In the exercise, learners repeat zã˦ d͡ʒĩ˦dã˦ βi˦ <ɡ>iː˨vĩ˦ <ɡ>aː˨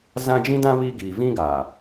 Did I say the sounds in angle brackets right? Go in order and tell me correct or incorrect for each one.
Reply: correct, correct

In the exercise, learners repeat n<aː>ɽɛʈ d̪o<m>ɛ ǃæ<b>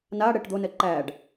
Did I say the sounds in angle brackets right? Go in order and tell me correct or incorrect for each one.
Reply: correct, incorrect: n, incorrect: ɖ

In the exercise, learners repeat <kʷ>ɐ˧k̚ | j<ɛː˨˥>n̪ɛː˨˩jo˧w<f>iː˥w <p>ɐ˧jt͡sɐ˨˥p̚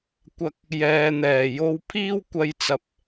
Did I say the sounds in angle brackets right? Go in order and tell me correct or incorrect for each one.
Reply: correct, incorrect: ɛː˨, incorrect: pʰ, incorrect: kʷ

